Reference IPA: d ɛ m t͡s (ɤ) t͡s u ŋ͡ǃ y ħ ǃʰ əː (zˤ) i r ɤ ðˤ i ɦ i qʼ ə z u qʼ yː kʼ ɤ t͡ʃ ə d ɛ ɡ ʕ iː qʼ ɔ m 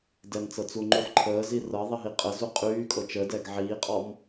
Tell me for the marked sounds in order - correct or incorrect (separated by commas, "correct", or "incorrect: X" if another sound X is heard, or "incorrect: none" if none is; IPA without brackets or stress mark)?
correct, incorrect: z